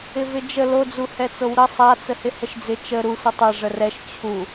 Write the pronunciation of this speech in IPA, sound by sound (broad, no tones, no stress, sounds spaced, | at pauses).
ɪ v ɪ d͡ʒ ə l o d͡z u h ɛ t͡s o w ɾ ə sˤ a t͡s ə h ɪ h ə ʃ d͡z ɪ t͡ʃ ə ɾ u sʷ ɪ tˤ ɛ ʐ ə r ɛ ʃ t͡ɕʰ u